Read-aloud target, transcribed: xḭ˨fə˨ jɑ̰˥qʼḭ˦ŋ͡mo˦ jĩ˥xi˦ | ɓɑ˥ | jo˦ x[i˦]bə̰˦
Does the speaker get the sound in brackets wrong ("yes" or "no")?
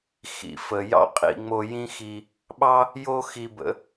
no